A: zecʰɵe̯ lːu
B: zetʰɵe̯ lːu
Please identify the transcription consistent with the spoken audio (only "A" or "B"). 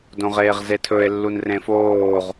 B